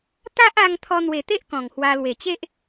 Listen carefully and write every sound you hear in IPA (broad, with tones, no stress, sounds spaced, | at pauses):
t̪ a˦ ʔ a˧ ŋ t̪ʰ ɔ˧ n̪ w e˨˩ t̪ e˦ ʔ k ɔ̃˨˩ ŋ h w a˧ l w e˨˩ t͡ɕ e˦ ʔ